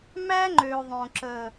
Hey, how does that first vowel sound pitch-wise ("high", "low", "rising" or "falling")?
high